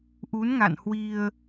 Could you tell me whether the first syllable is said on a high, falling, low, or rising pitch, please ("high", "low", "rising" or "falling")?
rising